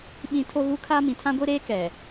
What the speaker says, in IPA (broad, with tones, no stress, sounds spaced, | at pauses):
ɓ ĩ˦ tʰ o˦ ɣ u˦ kʰ a˦ m ĩ˨ tʰ ã˦ ɡʷ i˦ ɾ eː˦ k ɛ˨